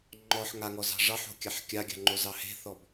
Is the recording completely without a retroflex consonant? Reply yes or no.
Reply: no